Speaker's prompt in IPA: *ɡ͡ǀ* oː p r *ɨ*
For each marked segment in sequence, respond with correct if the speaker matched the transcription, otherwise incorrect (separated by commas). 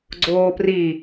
correct, incorrect